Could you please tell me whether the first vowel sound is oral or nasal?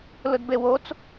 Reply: oral